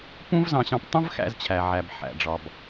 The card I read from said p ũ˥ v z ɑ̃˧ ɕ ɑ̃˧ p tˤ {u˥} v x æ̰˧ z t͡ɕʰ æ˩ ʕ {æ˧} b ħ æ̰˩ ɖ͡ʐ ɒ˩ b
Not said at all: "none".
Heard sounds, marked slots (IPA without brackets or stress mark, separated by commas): ũ˥, æ˩